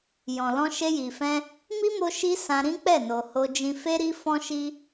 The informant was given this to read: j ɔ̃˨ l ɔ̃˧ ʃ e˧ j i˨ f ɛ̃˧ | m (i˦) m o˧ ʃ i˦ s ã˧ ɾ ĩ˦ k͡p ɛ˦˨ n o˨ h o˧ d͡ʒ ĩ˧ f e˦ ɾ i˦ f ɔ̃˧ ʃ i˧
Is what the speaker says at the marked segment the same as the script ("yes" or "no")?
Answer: yes